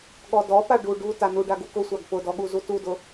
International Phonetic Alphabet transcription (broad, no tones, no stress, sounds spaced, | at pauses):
ɠ ɔ d ɔ p a ɖ u ɖ u t a n u ɖ a ɡ u k ʊ sʷ a ɡ p ʊ d ɔ ɠ u z u t u d ʊ